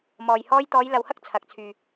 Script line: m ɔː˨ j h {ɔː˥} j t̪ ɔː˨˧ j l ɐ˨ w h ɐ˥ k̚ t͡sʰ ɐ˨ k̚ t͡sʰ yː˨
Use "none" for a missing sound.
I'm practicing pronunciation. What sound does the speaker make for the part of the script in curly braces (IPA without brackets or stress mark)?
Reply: ɔː˥